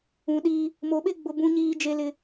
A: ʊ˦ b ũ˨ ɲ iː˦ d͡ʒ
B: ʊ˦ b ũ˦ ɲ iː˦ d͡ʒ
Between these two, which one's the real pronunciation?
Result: B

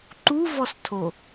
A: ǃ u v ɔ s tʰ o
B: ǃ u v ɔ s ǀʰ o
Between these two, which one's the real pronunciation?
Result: A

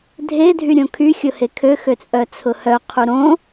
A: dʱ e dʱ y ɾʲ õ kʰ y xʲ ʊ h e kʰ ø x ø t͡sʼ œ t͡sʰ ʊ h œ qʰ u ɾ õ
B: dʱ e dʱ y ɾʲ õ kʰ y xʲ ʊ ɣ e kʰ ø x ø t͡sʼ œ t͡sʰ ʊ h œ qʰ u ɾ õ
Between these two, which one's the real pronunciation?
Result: A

